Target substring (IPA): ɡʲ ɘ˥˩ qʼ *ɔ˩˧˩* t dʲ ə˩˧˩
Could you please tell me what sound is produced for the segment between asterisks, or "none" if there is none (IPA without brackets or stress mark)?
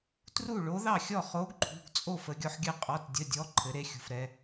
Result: ɔ˩˧˩